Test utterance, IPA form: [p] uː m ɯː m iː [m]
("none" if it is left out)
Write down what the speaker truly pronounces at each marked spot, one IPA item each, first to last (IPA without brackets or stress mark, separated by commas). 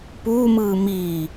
p, none